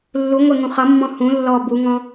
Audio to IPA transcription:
lːuŋʷɛŋũ χʌmːɔ̃ hũ lːɔ buŋɔ̃

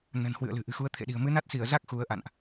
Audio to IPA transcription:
nə̤˨˩nhwɨ̰˧˨ə̯lɨ̤˨˩ ʔɨ̤˨˩xu˨˦ə̯ t̪ʰḛ˧˨ɗi̤˨˩ə̯ mɨ˨˦na˦˥t̚si˧˩ə̯za˦˥k̚ xu˨˦ə̯ʔa̰˧˨nʔ

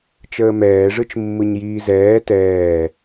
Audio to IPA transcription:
t͡ʃəːmɛːʐɯt͡ʃ mːɯɲjiːzɛː tɛː

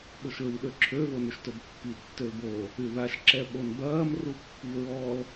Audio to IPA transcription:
ɓʊʃɹiɗøǁʰø vonʏʃtobpːi tːølbo | yðaʃ ǁɛɓonbɐːm rupːiɹɔl

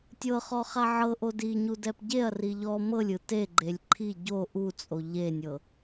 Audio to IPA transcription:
tʲɤχɔχa ʕɤʔo diɲudɛp ɟeɐ̯ri ʎɔ mɤlʲɯ teɡ͡ǃelʲ ǃʰi ɟo ʔut͡sʼo ʎenʲɤ

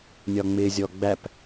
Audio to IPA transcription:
nʲɒŋ͡mɪzʲɔ ɡ͡bæp

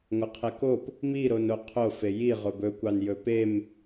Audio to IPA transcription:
ŋʷɐqʰekop | miɾono qʰofe ji ʁobɵkʷɑn jɵpem

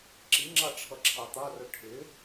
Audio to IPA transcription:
ǁiŋ͡ǁɑʈ͡ʂʰʌ ǁʰɑt̪ɑrʊ ʈʰɪ

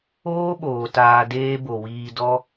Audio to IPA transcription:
oː˦ɓoː˨ taː˧deː˦ bo˨wiː˧dɔ˦

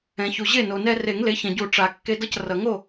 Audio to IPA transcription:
ɛ̃˩ çu˩ʑe˥˩ no˩nɛ˧ re˨˩˦ŋle˩˥çɛ̃˩ɟu˨˩˦ ʈ͡ʂa˩ kːe˧dʌ˥˩c rʌ˩ ŋo˥˩

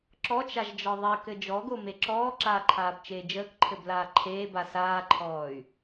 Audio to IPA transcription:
ǁɔt͡ʃaʒd͡ʒɒ ðˤɘkɘ d͡ʒɔɡome ǁɔːǁaːǃʰaːbt͡ʃeː d͡ʒəːkǃʰɘblaː ǃʰeːba saːǃʰɔːy̯

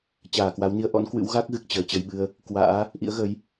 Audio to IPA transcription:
t͡ɕaː˧˩kwa˨˦wni˨˦ə̯ ʔɔ̰˧˥nkwɨ̰˧˥w ɣa˦˥k̚ ɣɨ˨˩k̚t͡ɕəː˨˩t͡ɕə˧jɓɨ˧ə̯ | kwa̰ː˧˥ | ʔḭ˧˥ə̯ɣə˨˦j

